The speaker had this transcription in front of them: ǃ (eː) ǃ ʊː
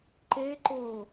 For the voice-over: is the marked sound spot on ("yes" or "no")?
yes